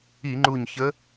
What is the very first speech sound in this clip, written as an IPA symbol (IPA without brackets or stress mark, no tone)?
i